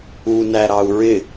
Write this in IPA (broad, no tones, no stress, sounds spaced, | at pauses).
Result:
u n æ ɾ ɑ u̯ ɹ ɪ